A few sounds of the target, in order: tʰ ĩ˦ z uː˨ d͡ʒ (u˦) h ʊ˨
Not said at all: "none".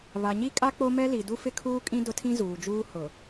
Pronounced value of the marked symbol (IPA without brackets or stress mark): uː˦